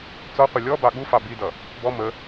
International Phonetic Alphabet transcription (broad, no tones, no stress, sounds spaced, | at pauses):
t͡s ɔ qʷ ɪ lʲ ɔ b ɑ ɠ u f ɑ b i d ʌ | b ɔ m ə